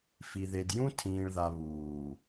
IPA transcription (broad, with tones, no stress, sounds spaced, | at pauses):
f i˨ ð e˨ d j ũ˦ tʰ ĩː˨ ɭ ð a˨ β uː˨